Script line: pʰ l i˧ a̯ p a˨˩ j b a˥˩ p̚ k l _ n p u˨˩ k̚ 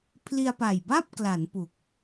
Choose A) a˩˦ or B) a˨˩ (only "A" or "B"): A